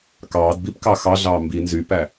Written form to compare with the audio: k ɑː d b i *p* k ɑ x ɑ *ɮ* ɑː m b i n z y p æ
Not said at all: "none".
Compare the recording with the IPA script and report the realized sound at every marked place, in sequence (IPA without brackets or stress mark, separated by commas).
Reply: p, ɮ